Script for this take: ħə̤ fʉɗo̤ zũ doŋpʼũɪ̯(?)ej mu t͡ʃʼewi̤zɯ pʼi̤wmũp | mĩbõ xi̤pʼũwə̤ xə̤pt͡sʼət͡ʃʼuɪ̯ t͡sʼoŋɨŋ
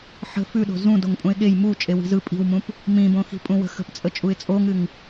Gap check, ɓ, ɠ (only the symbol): ɠ